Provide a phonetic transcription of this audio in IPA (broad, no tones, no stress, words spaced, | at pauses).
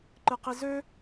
ǃɨqizø